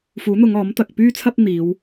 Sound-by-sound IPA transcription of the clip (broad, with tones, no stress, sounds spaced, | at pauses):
f uː˨˥ n̪ ʊ˨˧ ŋ ɔː˨˥ m t̪ ɐ˨ k̚ p yː˥ t͡sʰ ɐ˥ p̚ n̪ iː˨˧ w